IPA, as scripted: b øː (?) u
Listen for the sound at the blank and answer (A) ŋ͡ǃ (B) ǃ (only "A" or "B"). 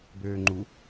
A